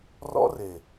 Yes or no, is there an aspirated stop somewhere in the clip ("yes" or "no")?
no